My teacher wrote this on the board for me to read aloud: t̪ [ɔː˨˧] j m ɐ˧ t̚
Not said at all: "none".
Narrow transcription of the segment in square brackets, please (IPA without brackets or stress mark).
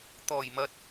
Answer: ɔː˨˩